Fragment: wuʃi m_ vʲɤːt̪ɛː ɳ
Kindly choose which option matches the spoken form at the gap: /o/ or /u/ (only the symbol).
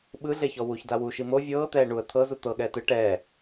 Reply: o